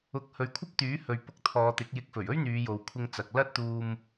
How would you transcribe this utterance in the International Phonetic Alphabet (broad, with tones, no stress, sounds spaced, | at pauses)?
ʊ˨˥ k̚ h ɵ˨ ɥ kʷʰ ɐ˥ p̚ t̪ yː˨˥ h ɵ˨ ɥ p ʊ˧ k̚ t̪ʰ ɔː˨˧ t̪ ɪ˨˥ k̚ j ɪ˨˥ k̚ f ɵ˨˩ ɥ ɵ˥ ɥ n̪ yː˨˧ j o˨ w kʷʰ ɪ˧ ŋ t͡s ɐ˨ k̚ l ɐ˥ t̚ t̪ uː˧ m